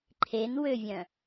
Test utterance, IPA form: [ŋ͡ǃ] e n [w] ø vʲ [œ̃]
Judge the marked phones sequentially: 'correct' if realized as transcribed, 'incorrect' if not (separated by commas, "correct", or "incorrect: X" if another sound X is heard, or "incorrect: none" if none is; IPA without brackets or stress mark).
incorrect: ǃʰ, correct, correct